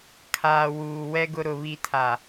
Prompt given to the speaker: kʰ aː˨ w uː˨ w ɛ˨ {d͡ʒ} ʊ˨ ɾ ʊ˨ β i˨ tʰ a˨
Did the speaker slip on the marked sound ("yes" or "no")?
yes